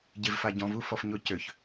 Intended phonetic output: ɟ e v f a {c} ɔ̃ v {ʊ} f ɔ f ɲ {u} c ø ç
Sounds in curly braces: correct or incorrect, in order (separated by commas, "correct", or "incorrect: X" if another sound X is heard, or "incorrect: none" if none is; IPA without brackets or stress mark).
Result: incorrect: ɟ, incorrect: u, incorrect: ʊ